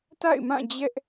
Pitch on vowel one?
falling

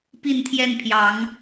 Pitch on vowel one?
falling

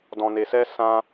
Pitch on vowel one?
low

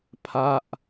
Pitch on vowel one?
falling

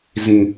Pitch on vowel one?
low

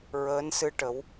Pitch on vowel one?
rising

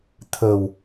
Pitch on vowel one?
low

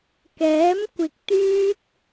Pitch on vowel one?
rising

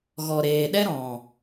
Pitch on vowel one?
low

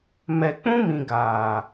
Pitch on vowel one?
low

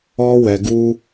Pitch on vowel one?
high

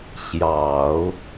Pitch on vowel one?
low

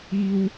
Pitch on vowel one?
high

